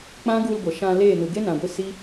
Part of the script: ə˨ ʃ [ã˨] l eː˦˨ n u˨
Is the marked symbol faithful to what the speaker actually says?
no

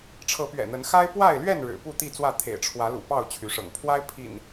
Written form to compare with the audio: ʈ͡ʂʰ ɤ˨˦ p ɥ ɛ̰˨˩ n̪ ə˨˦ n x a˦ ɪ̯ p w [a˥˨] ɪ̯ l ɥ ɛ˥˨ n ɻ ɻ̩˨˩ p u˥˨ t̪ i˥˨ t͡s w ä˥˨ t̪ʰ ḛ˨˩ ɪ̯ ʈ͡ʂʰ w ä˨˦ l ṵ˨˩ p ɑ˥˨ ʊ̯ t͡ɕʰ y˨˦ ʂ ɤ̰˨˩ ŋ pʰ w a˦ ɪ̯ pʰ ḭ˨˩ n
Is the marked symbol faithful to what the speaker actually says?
yes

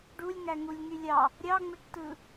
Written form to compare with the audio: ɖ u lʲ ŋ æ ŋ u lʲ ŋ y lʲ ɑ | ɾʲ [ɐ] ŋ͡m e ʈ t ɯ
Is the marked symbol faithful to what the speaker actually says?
no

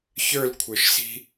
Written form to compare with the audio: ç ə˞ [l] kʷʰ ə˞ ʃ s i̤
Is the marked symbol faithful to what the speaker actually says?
yes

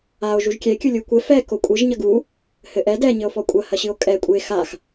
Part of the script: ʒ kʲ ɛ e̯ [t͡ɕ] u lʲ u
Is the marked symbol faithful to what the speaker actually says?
no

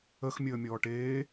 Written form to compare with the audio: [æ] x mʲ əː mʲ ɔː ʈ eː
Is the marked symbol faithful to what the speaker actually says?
no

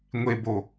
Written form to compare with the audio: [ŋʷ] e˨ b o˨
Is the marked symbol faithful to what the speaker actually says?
yes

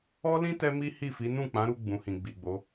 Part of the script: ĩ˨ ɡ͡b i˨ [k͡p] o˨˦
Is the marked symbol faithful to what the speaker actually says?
no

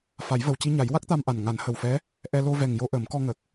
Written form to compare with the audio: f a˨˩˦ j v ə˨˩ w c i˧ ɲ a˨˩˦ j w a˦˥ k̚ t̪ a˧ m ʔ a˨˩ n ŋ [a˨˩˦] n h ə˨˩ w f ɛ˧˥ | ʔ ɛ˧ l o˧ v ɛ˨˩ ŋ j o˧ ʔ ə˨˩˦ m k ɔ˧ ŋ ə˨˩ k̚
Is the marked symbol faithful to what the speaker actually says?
yes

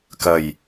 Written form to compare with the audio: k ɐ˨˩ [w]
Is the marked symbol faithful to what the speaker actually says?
no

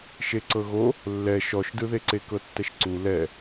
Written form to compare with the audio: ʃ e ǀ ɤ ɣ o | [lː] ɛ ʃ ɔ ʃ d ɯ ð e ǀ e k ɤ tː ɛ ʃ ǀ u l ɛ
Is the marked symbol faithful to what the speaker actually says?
yes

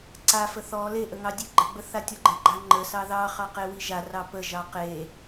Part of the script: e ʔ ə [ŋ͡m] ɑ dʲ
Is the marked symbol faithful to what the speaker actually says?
no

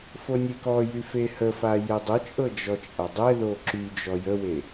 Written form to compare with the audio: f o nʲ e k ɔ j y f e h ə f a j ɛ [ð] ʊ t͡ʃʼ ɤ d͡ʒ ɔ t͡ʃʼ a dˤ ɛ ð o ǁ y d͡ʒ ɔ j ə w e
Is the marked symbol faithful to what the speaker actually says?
no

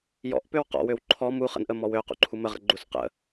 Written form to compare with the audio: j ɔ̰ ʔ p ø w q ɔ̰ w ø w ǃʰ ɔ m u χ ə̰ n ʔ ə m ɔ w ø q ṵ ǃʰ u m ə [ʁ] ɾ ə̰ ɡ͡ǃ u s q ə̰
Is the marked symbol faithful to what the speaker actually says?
yes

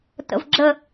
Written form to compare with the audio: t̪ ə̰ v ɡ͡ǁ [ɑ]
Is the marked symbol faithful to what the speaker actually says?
no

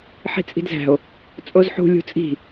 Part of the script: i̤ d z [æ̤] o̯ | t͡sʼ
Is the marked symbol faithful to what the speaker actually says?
yes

